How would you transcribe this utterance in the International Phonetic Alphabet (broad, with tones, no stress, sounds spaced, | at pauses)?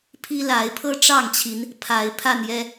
pʰ i˦ l a˨˦ ɪ̯ pʰ ɤ˦ ʈ͡ʂ ɑ˥˨ ŋ t͡ɕʰ i˨˦ n | pʰ a˨˦ ɪ̯ pʰ a˥˨ n j ɛ˦